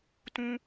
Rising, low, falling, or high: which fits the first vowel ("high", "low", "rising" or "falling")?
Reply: low